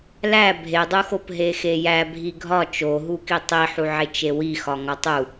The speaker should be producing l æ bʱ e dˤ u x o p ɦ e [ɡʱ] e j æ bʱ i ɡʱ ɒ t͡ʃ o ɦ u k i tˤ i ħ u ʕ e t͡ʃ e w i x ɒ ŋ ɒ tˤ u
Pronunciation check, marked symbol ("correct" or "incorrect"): incorrect